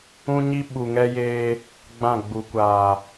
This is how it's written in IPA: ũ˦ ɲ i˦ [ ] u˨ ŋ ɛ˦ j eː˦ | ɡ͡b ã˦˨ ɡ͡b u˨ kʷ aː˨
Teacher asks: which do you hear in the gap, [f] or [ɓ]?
ɓ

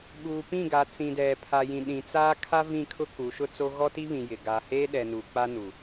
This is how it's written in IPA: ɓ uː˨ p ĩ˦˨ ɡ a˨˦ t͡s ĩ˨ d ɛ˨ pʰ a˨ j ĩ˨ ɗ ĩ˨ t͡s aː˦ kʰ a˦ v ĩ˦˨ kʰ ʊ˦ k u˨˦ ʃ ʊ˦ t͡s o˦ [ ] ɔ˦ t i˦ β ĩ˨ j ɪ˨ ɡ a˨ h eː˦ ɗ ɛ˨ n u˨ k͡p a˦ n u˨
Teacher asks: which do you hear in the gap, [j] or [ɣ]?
ɣ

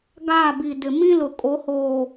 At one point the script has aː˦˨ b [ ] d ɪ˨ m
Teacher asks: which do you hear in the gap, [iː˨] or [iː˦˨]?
iː˨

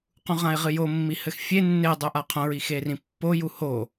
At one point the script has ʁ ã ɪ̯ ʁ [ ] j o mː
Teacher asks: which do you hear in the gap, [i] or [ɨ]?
ɨ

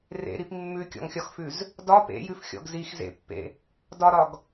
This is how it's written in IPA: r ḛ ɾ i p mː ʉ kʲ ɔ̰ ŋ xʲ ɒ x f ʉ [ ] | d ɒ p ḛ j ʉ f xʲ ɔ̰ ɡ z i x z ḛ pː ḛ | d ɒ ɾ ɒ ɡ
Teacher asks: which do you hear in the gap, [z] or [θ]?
z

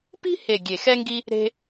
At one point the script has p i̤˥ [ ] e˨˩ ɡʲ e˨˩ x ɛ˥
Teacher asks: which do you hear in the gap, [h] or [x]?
h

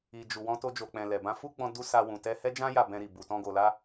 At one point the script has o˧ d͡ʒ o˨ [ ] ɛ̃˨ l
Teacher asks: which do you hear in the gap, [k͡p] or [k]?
k͡p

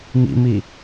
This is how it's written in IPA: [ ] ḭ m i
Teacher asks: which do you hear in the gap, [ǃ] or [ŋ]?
ŋ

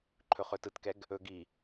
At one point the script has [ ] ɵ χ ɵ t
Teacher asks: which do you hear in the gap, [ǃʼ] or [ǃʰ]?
ǃʰ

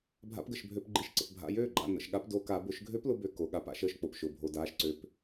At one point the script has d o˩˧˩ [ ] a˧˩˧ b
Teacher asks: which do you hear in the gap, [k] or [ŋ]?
k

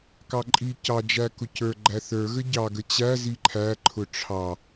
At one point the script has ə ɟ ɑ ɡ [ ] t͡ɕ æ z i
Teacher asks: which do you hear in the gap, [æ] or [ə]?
ə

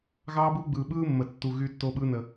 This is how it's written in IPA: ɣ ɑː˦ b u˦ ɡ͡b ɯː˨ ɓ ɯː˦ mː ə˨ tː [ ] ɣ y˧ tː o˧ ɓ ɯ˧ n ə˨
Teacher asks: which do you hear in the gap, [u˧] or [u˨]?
u˨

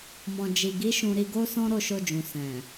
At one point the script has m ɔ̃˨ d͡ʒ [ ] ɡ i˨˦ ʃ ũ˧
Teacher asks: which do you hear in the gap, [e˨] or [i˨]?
i˨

